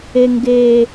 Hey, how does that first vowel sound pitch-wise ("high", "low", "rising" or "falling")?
high